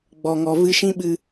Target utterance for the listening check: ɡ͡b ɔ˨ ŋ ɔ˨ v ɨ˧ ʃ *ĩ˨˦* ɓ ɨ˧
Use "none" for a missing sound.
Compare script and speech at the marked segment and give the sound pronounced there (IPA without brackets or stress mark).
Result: ĩ˦